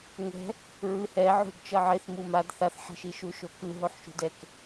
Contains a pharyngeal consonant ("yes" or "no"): yes